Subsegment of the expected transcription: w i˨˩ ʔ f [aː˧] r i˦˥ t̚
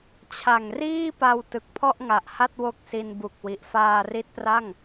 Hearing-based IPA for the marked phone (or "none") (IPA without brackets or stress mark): aː˧